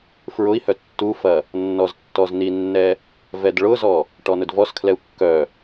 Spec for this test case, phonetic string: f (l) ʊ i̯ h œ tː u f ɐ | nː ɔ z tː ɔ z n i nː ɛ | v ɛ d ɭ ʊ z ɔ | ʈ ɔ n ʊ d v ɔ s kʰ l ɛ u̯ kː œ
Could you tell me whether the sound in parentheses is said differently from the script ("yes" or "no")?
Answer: yes